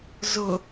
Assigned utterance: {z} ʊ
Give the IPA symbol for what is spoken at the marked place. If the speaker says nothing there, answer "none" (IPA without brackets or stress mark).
z